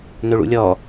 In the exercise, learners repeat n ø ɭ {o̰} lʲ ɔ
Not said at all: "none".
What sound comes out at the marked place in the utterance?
ṵ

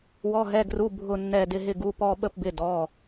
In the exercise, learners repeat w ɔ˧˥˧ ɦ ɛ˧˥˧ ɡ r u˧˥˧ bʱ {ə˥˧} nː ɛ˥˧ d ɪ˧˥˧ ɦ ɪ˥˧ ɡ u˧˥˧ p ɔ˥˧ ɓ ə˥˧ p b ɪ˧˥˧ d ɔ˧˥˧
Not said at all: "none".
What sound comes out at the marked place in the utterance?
ʊ˥˧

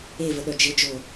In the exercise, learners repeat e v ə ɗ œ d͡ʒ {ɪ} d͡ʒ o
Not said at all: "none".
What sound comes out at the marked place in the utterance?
ɪ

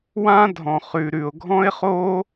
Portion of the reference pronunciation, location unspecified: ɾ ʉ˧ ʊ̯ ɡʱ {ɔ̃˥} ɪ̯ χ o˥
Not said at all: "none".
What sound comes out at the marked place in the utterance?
ɔ̃˥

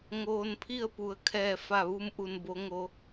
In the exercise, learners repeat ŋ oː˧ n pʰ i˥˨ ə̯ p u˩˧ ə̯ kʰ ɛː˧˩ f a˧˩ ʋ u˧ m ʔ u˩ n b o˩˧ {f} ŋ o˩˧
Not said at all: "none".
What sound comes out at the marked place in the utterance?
none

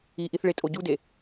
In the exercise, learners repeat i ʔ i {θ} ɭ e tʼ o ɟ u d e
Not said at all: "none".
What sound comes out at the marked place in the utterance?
θ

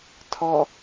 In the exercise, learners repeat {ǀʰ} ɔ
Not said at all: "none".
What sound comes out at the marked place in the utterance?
tʰ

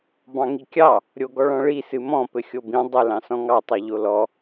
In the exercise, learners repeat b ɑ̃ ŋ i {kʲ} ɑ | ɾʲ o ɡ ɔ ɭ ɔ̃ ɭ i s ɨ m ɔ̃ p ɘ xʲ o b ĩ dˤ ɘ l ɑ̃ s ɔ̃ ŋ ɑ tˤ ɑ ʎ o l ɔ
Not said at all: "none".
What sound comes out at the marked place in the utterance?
kʲ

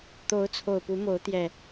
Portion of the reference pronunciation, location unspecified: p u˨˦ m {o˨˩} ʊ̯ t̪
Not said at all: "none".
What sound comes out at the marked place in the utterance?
o˨˦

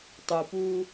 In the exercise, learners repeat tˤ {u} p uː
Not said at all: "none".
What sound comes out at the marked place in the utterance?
u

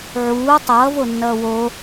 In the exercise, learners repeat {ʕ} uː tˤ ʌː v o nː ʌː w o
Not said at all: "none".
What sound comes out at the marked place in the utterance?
ʕ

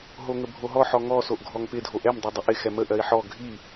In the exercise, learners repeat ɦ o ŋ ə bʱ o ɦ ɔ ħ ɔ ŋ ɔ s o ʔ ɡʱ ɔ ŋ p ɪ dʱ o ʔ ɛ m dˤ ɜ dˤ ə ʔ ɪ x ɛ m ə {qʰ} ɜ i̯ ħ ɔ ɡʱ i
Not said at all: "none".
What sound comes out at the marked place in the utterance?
ʔ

